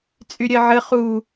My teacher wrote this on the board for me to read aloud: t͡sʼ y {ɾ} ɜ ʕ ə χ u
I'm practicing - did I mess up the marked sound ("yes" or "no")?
yes